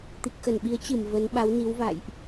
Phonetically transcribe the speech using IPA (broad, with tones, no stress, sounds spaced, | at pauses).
t̪ i˨˩ k̚ x ə˧˩ n ɓ i˨˦ ə̯ t͡ɕ ɨ˧˩ m v ə˨˦ n ɓ a˨˦ w n i˨˦ w v a̰˧˨ j ʔ